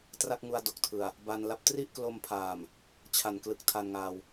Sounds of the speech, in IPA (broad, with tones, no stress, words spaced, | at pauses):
tra˥˩k̚ŋu˧a̯ do˨˩k̚tʰɯ˨˩a̯ | ba˧nla˦˥p̚ tri˥˩ʔklo˧mpʰaː˨˩m | t͡ɕʰa˨˩nklɯ˨˩k̚ tʰa˧nŋaː˧w